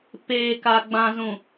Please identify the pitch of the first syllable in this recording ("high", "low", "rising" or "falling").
low